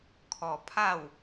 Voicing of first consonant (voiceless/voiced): voiceless